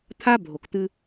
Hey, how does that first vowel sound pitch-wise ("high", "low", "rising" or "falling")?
high